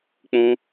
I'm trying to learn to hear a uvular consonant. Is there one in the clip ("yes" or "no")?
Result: no